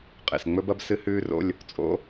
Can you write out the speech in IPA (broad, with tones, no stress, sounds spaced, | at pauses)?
qʼ ḛ˨ s ŋ͡m ɵ˥ b ɐ˥ b s ɨ˥ h ʉː˥ r o̰˧˥˧ lʲ | t͡sʼ o̰˧˥